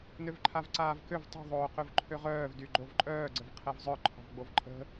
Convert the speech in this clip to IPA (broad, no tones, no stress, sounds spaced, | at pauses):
n ø v ǃʰ a v ǀ aː v k ø v tˤ ṳ ðˤ oː q ø v ǃʰ ø ʁ œː v d y ɡ͡ǃ o v ǃʼ œː ɡ͡ǀ ə v qʰ ɛ v zˤ œ ǃʰ ɔ̤ v ɡ͡b o v ǃʼ ə̤